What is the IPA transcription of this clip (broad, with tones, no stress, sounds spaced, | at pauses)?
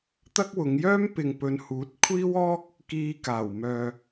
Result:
t̪ ɐ˥ k̚ w ʊ˨˧ ŋ j œː˥ m p ɪ˨ ŋ p ɵ˨˧ n h uː˨˥ t̚ kʷʰ iː˥ w ɔː˥ k̚ | k iː˧ k aː˨˩ w m œː˨